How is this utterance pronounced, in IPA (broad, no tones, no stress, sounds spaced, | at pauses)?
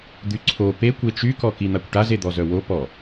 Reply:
d̪ y ǀʰ o p e kʷ e t͡ʃ y k ɔ k i n̪ a kʷ ʈ a z e d̪ ɔ z œ w o p ɔ